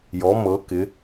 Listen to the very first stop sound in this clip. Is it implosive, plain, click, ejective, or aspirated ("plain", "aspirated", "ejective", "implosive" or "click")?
plain